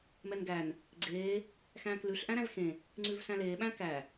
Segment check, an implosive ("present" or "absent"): present